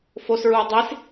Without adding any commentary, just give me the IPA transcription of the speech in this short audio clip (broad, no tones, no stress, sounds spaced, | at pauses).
f o s ɹ u ə̯ dˤ i s